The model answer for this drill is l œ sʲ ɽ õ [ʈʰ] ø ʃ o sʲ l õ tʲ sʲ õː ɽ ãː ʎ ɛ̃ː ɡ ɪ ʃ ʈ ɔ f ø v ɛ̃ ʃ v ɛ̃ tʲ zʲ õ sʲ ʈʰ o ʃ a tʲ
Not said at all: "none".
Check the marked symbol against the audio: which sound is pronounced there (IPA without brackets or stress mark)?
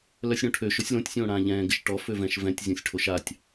ʈʰ